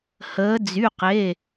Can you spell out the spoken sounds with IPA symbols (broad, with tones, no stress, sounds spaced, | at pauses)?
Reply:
h əː˩˧ d͡z y˩˧˩ q e˩˧˩